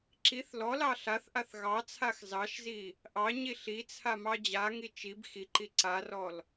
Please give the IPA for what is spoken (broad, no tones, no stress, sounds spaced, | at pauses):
ǁ i θ l ɔ l ɑ ɬ a θ ʔ a θ ɣ ɑ t͡sʰ a x z ɑ ʃ z i | ʔ ɑ ɲ i ɬ i t͡sʰ a m ɑ d͡ʑ a ŋ i t͡ʃ i b x i ǃ i ǀ a r ɔ l